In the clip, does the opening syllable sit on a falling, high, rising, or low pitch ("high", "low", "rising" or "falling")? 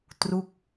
falling